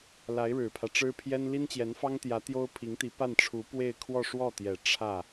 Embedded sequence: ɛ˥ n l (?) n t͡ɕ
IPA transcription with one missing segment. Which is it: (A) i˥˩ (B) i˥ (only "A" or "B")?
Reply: B